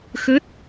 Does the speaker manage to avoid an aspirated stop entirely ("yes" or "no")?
yes